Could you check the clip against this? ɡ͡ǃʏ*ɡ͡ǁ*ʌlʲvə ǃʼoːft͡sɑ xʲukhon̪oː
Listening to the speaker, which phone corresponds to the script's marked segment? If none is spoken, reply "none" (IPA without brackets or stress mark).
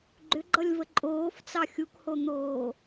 ɡ͡ǃ